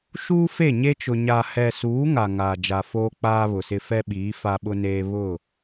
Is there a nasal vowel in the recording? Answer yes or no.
no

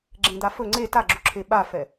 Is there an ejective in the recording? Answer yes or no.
no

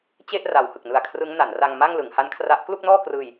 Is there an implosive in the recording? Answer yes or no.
no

